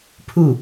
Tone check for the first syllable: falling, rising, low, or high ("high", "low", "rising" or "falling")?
falling